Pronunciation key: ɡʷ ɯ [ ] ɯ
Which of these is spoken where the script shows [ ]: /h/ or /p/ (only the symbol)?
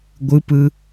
p